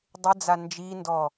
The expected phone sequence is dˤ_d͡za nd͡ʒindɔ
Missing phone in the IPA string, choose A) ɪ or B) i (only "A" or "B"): A